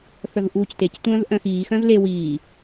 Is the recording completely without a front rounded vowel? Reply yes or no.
no